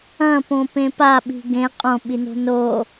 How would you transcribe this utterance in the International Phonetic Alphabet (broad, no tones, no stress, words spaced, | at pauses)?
ɐ̃põpẽ paɓi̤ ɡẽ qʼõɓino̤ no